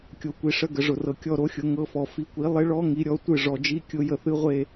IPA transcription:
kʲ o˨˦ kʷ i˨ ʂ ə˧˥˧ ɡ ə˨ ʐ ʊ˨ r ɤ˨ kʲ ɔ˦˨ ɾ o˦˥ xʲ ʊ˨˦ ŋ ɤ˧˥˧ f ɔ˨ f i˨˦ kʷ i˨˦ lˠ ɪ˦˥ ɭ ɔ˦˥ ŋ i˨˦ ɾʲ ɔ˨˦ tʷ ɨ˦˨ ʐ ɔ˨ d͡ʒ i˧˥˧ kʲ ʊ˦˥ j ə˦˨ θ ɨ˦˥ ʁʷ e˦˨

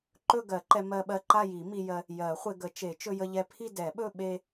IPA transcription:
ǃ ɵ˥˧ ɡ ɜ˨˩˦ ǃ ɛ˧ m ɜ˧ ɓ ɜ˧ ǃ a˥˧ j i˨˩˦ m i˧ j ɜ˧ | j ɜ˨˩˦ χʷ e˧ ɡ ə˨˩˦ t͡ʃ e˨˩˦ t͡ʃ ɵ˧ j ə˧ ʎ ɛ˧ pʰ i˥˧ d ɛ˨˩˦ ɓ ɵ˥˧ ɓ e˧

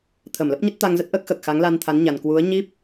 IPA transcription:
t̪ʰ ə˧˩ m l ə˦˥ p̚ ɲ ə˦˥ t̚ t̪ a˧ ŋ z ə˦˥ t̚ ʔ əː˦˥ k̚ x əː˨˩ k̚ x a˨˦ ŋ l a˧ n t̪ʰ a˨˦ n ɲ a˨˩ n k w u˨˦ ə̯ ɲ i˦˥ p̚

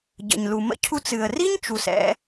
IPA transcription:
ɟ ə̰˩ ɲ l u˩ m ə̰˧ cʰ u˧ t͡s ɨ˩ ə̯ r i˥ ɲ t͡ʃ u˩ s ɛ̰˧

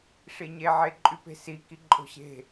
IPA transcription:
ʂ i ɲ e ʕ e ǃʼ y p e̤ s i k i ǃʼ o̤ ɕ e̤

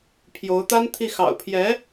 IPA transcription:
pʰ j o˧˥ ʊ̯ t̪ a˥ n t̪ʰ i˥˩ x ɑ̰˨˩ ʊ̯ pʰ j ɛ˧˥

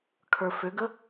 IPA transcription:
kʰ ə˞ f ʏ ɡ ə

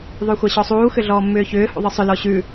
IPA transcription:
ðˤ ʉ xʷ a ɕ ɔ sˤ uː x ʏ ɮ ɔː mː ʏː ç ʏː h ṵ ðˤ ɯ sˤ ʏ l ɔ ɕ ʉ

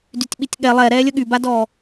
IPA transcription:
d y tʲ ɓ i tʲ ɠ ɛ lˠ ɛ ɾ ɛː lʲ ə ɠ y b a d ɔː

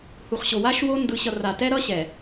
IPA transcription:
h u˨ χ ɕ o˨ w a˦ ʃ w o˦ n d ɯ˨ ɕ ʌ˨ r a˨ t ɛ˦ ɾ ʌ˦ ɕ ɛ˨

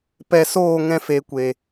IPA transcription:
p ɛ˨ s oː˦˨ ŋ ɛ̃˧ f e˨ kʷ e˨

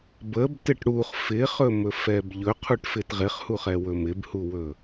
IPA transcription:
b ə b t ɪ ʈ ɽ u χ f ɪ χ ɵ m ɵ f ɛ b ʎ ɵ qʰ u ʈ f ɪ t ʁ ɪ χ h u χ ɛ w ɵ m ɪ b h u w ɵ

